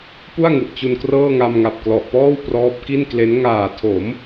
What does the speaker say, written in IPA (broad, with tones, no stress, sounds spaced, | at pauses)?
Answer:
p u˥˩ a̯ ŋ u˨˩ ʔ t͡ɕ u˧ n k r ɤː˥˩ ŋ a˧ m ŋ a˨˩ p̚ k l ɔ˨˩ ʔ p ɔː˥˩ w p r ɔː˦˥ p̚ k i˥˩ n k l e˦˥ n ŋ aː˨˩ tʰ o˩˦ m